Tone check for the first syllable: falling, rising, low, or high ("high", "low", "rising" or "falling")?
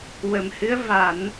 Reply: low